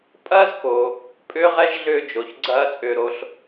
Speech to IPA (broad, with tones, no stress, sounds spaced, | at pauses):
pʼ ɐː˦ z k o˩ | pʼ ʏː˥ ʁ ɛ˥ ʒ ɮ ʏː˦ d͡ʒ o˩ ç ɡ͡ǀ ɐː˦ t͡sʼ ʏː˨ ɾ o˨ ɬ